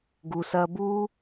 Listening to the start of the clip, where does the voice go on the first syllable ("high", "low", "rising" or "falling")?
low